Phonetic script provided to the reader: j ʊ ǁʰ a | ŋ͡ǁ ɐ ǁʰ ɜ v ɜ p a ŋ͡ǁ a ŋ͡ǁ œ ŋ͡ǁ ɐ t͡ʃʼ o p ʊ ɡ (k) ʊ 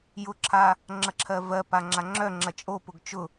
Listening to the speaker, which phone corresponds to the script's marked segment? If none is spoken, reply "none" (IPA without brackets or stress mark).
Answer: t͡ʃ